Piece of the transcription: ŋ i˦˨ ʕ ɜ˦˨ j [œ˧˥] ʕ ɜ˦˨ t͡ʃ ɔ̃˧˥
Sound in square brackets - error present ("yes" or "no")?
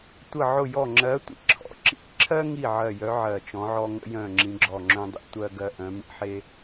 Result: no